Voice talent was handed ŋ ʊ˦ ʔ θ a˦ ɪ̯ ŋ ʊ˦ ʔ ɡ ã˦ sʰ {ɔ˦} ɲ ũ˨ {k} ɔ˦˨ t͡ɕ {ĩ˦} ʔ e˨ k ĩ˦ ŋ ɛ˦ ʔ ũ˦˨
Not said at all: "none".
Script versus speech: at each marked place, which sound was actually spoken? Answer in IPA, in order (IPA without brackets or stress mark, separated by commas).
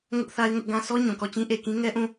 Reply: ɔ˦, k, ĩ˦